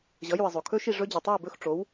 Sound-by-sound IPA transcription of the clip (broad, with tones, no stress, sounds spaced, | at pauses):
ʑ ʌ˩˥ j u˩ ɪ̯ zˤ o˩ kʰ ɵ˥ ʃ i˥˩ ʐ ɵ˥ d͡ʑ ɵ˩ tˤ o˥˩ ɪ̯ b ɵ˥˩ x ʈ͡ʂ o˩˥ w